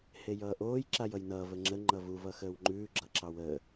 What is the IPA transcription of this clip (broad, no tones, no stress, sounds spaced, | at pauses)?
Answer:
h e j ʌː ʔ oː j ǁ a j ʌ j n ʌː v ə ŋ͡ǁ ə ŋ͡ǃ ʌ v u v ʌ x əː w ŋ͡ǃ ʉː ɡ͡ǁ ʌ ǁ ɑ w əː